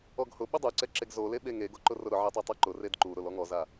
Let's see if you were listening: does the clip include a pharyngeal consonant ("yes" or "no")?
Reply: yes